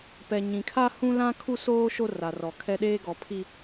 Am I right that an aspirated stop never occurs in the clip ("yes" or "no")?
no